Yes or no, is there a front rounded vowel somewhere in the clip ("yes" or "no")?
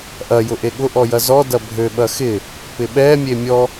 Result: yes